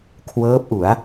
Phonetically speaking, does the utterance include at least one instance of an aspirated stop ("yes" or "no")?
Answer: yes